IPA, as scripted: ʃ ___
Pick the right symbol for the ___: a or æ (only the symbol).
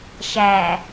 æ